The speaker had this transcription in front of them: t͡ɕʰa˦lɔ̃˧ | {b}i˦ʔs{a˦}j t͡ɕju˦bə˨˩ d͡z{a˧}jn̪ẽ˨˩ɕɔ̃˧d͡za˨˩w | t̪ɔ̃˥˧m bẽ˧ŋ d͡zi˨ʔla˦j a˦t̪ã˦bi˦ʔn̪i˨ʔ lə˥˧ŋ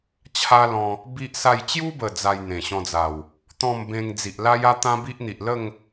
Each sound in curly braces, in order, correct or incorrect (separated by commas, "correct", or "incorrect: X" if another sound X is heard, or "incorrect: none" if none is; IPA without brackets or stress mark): correct, incorrect: a˥˧, correct